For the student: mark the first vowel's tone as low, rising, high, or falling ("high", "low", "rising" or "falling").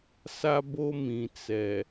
high